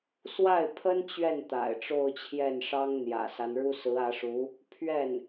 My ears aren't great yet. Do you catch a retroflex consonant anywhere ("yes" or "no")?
yes